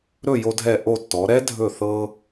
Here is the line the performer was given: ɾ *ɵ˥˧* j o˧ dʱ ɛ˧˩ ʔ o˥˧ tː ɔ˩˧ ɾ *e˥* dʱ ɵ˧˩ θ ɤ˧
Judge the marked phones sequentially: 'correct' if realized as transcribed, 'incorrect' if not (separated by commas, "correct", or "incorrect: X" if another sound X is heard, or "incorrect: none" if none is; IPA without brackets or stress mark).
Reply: correct, incorrect: ɛ˥